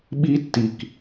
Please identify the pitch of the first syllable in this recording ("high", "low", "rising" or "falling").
high